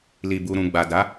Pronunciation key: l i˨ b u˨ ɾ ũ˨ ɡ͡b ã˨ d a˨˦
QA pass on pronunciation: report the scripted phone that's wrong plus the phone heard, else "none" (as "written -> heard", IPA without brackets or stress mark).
ã˨ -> a˨